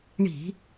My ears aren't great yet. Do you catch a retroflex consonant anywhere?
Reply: yes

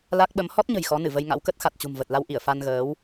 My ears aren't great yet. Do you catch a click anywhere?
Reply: no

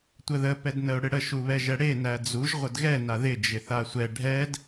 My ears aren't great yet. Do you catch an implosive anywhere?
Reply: no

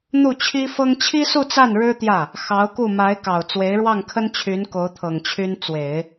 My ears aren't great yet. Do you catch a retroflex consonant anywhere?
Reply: yes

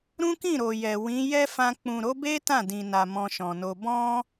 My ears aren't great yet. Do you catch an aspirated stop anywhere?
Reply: no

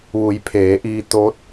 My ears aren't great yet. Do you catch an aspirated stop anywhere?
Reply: yes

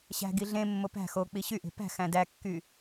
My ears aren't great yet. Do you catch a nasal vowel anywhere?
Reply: yes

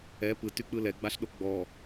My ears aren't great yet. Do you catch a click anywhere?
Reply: no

